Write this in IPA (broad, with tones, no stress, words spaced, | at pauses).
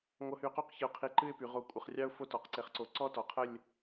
ŋʷʌ˧hy˧qo˥˧q çə˧ʊ̯qʰi˧˩ǃɨ˥˧ɪ̯py˩˧ ʁo˧kʷʼə˧˩χrʲɑ˥ʊ̯ fo˥tɔ˩˧qǀe˧χǀo˧ ǀɔ˥ tɔ˩˧qʰə˥˧lʲ